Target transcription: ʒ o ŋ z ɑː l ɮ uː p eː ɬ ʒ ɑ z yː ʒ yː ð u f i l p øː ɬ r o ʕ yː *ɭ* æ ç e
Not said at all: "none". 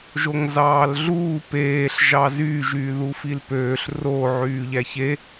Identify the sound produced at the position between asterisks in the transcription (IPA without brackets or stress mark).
ʎ